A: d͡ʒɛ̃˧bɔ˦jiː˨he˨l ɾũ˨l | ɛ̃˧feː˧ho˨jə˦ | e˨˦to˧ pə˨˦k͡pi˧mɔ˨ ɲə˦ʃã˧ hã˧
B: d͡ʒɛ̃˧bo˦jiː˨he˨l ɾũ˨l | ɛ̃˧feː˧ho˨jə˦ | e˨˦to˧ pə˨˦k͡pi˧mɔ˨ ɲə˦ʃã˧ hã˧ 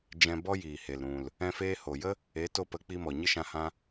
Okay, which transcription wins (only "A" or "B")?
A